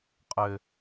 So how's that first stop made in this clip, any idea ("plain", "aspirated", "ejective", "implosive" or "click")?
ejective